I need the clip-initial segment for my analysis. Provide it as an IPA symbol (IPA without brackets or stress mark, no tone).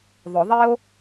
ðˤ